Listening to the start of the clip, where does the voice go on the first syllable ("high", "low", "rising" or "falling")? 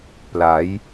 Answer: rising